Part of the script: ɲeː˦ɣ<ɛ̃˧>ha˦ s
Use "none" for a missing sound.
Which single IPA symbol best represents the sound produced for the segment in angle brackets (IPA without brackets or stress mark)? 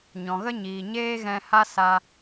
ɛ̃˧